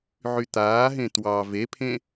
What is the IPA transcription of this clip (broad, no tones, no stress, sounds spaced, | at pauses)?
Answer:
ʕ y t̪ aː ɦ ẽ t w ɑ v e pʰ ẽ